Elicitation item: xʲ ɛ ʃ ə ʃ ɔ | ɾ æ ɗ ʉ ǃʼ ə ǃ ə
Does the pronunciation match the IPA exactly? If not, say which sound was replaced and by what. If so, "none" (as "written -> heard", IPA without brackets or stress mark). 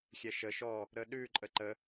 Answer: æ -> ə